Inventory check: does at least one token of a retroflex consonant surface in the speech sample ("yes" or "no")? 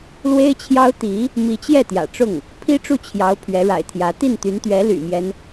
yes